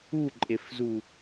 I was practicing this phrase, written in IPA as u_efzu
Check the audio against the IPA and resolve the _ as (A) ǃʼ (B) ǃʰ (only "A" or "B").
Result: A